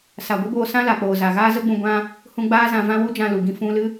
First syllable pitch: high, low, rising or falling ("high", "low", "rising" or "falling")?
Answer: low